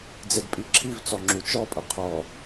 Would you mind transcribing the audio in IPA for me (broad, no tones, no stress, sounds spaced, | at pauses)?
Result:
d͡z e d pʼ i ǁʰ i v t͡s ɔ ŋ͡ǁ u t͡ʃ ɔ pʼ ɐ qʰ ɔ